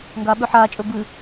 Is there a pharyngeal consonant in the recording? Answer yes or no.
yes